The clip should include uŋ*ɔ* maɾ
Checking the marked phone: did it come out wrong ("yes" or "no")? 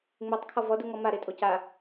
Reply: no